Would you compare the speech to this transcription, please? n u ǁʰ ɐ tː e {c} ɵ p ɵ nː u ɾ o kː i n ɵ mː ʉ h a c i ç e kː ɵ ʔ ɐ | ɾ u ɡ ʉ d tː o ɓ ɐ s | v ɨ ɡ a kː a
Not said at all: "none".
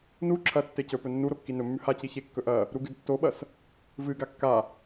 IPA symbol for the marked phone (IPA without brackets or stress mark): c